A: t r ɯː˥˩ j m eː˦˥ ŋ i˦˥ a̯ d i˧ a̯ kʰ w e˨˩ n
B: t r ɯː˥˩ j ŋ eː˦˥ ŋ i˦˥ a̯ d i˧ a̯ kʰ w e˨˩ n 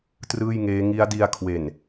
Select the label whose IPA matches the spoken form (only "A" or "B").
B